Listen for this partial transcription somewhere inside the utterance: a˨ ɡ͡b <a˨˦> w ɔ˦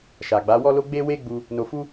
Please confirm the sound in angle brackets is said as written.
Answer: yes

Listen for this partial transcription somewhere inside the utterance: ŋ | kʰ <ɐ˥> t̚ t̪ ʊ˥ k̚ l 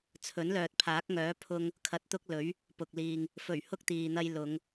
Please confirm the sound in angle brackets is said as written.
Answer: no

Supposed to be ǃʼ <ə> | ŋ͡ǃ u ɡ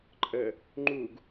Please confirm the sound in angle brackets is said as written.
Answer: yes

